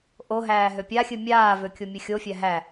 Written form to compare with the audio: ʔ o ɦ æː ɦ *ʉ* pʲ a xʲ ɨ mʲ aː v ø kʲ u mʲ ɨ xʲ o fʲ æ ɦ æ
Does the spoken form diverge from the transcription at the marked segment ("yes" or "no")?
yes